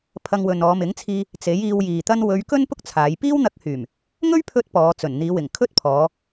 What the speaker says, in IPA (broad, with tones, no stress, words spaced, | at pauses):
pʰɐ˧ŋwɵ˨n ɔː˨˧mɪ˨˥ŋt͡sʰiː˧ | t͡se˨˥jiː˧wjiː˨t̪ɐ˥n wɵ˨˧ɥ kɵ˥npʊ˥k̚t͡sʰaː˨˧j piː˥wn̪ɐ˧k̚hyː˨˩m | ŋɵ˥ɥpʰɵ˧t̚ pɔː˨˧t͡sɵ˨˩n n̪iː˨˧wɪ˨˩ŋkʰɵ˥t̚ pʰɔː˨˧